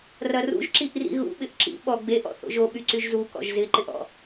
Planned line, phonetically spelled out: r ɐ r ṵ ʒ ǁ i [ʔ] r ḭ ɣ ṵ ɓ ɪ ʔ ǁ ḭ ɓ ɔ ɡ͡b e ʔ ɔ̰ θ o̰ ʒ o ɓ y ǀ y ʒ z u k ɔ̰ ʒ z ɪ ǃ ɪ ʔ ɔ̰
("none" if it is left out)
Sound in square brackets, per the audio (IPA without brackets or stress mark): ʔ